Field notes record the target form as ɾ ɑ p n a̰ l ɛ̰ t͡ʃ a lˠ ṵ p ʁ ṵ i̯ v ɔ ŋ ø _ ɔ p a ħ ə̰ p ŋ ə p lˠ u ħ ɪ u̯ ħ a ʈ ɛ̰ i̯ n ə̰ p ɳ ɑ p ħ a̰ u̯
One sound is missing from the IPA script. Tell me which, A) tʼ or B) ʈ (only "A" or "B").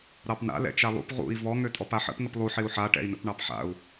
A